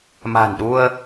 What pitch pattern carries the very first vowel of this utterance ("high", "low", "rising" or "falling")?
low